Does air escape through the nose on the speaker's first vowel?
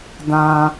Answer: yes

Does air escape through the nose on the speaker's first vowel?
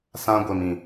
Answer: yes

